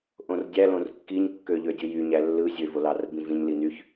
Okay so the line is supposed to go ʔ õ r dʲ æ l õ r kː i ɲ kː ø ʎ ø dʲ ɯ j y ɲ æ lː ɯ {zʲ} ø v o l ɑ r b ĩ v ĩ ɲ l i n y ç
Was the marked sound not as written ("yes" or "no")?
no